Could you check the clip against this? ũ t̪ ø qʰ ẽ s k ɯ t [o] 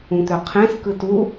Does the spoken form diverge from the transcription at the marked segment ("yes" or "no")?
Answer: yes